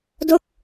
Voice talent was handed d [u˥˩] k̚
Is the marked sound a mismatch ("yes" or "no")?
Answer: yes